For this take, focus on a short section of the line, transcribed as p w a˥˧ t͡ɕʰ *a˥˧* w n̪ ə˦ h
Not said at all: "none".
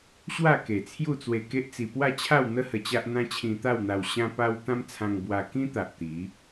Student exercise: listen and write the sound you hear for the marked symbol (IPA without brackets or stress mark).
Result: a˥˧